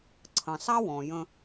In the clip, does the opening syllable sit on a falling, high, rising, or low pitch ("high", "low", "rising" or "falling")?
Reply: low